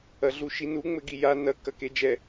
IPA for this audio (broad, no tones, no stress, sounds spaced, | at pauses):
ɐ ɮ u ʃ i n u ŋ͡m ɘ ɡ i j a n ɐ k ɐ k e d͡ʒ ɛ